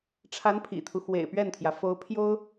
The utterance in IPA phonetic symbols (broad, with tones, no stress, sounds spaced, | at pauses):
ʈ͡ʂʰ a˧˥ n pʰ ḭ˨˩ t̪ʰ u˦ x w ḛ˨˩ ɪ̯ p ɥ ɛ˥˩ n t̪ʰ j ä˩ f o˧˥ ʊ̯ pʰ j o˥ ʊ̯